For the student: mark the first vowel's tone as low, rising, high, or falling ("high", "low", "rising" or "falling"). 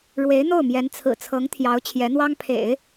rising